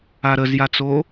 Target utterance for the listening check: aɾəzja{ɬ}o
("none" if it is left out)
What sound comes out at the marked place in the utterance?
t͡s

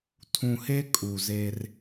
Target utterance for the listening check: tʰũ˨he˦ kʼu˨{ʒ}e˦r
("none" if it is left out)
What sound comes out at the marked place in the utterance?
z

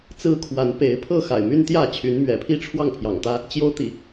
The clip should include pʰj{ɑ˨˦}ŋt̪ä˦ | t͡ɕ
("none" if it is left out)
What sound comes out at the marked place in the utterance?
ɑ̰˨˩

